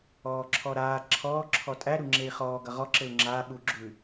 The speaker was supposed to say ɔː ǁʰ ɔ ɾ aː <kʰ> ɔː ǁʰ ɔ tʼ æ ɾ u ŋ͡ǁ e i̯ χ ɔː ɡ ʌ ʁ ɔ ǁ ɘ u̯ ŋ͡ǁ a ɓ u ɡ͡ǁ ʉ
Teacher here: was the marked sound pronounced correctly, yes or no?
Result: no